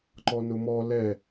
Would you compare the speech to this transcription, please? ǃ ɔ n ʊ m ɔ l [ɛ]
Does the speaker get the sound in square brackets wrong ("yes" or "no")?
no